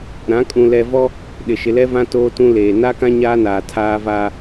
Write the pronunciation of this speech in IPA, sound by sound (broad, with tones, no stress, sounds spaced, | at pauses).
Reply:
ɾ ã˨˦ kʼ ũ˨ l ɛ˨ v ɔ˦ | ɗ ɪ˨ ʃ ɪ˨ l ɛ˦ v ã˦ t oː˦ t ũ˦ l eː˨ n a˦ k ã˦ ɲ aː˦ n aː˨ tʰ aː˦ v aː˦